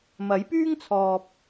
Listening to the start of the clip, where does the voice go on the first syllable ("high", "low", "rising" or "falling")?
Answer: rising